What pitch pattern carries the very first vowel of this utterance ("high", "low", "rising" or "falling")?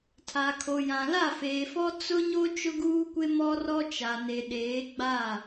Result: low